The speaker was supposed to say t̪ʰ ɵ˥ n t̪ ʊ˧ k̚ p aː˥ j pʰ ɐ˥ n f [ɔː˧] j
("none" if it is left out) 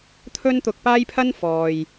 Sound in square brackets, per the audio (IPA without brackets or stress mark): ɔː˨